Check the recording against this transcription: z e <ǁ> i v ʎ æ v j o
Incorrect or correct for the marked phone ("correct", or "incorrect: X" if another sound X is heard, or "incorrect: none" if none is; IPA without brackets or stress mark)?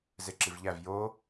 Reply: correct